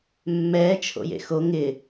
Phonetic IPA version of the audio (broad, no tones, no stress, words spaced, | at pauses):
mːɛːt͡ʃʰo̰jḛ xo ŋɪ